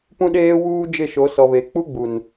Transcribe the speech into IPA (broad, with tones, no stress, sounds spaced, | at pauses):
p ũ˦ ɗ eː˦ w uː˦ d͡ʒ ɪ˦˨ ʃ o˨˦ s ɔ˨ β e˨ k͡p u˦ ɡ͡b u˨ n